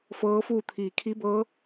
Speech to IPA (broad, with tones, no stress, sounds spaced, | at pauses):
f ɤː˧˥ f uː˥˨ t̪ʰ iː˩ kʰ i˧˥ b ɤː˧˥